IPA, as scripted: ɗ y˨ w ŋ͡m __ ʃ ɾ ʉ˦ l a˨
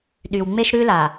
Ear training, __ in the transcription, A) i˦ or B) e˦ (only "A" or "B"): B